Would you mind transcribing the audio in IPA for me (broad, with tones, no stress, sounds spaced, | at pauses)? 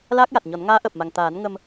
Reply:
l aː˦˥ k̚ j a˨˩ t̚ ɲ ɔ˨˩˦ n ŋ aː˧˥ ʔ əː˨˩ p̚ m a˨˩ ŋ t̪ aː˨˩˦ n ŋ ə˧ m